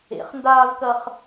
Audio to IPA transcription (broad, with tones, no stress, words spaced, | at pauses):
ḛ˨˩˦χndaː˥vkɐ˥χ